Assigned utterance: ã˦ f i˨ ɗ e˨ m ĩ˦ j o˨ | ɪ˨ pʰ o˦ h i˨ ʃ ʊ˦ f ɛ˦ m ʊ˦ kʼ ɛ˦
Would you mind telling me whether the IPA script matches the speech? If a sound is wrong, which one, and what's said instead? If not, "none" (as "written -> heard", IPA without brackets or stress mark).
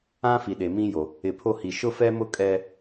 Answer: none